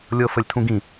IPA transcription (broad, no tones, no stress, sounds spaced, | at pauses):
lʲ ɤ f ə lʲ tʰ ũ ɡ ĩ